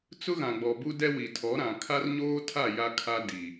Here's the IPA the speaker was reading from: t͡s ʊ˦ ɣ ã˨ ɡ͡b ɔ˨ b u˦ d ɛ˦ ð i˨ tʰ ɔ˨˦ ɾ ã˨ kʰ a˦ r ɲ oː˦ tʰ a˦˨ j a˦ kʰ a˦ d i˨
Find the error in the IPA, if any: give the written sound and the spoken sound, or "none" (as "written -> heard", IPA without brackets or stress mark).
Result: ð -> w